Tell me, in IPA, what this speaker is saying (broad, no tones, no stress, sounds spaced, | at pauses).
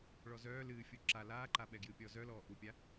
ɭ ɔ z œː l ɨː fʲ u ǁ a l aː ǃ a ɓ ɛ ɡ j ɨː pʲ ɔː z œ l ɔː ʔ u pʲ a